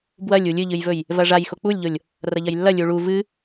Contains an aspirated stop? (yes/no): no